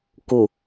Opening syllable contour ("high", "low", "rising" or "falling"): low